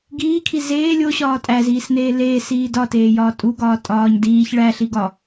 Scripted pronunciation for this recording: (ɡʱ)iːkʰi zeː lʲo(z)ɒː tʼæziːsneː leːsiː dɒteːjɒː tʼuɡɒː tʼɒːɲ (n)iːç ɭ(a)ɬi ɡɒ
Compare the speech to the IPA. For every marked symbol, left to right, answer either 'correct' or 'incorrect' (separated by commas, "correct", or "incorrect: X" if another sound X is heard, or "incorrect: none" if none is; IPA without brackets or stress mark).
incorrect: ɡ, incorrect: ɕ, incorrect: d, incorrect: æ